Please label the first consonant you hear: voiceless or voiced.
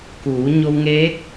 voiceless